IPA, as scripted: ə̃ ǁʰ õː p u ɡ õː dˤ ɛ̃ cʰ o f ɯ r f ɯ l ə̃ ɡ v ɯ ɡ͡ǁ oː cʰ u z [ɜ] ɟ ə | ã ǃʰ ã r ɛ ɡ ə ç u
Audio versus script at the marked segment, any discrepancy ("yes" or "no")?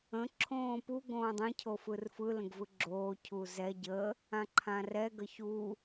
yes